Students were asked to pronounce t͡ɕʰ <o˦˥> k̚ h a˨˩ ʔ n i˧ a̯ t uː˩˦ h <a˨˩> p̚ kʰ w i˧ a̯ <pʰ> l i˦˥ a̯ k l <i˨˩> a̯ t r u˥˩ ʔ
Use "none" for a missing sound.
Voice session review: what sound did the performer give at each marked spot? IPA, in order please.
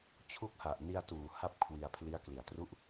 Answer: u˦˥, a˦˥, pʰ, i˨˩

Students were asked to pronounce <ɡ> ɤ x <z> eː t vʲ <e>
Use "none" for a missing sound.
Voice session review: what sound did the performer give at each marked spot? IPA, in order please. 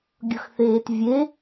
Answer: ɡʲ, θ, e

